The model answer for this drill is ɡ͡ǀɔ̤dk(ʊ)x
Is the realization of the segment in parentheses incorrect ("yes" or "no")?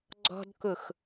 no